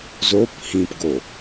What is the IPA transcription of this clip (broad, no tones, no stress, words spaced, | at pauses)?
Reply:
zop hĩpɡo